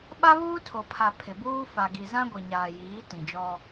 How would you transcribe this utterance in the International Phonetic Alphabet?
ɓ a˦ β uː˦ tʰ o˨ pʰ a˨ pʰ ɪ˨ b uː˦ f a˨ ɡ i˨ z ã˦ ɡʷ i˨ ɲ aː˨ j iː˨˦ t ĩ˨ d͡ʒ ɔ˦

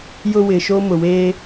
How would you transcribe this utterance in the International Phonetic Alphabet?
j ʊ˦ w ɪ˨ ʃ o˦ m ʊ˨ w eː˦

